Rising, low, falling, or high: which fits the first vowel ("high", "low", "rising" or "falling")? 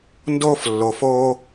high